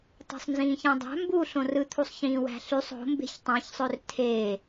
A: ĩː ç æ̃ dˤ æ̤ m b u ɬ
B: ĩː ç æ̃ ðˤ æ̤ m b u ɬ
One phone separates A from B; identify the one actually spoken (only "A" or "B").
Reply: A